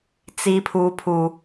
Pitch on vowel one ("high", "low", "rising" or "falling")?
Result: high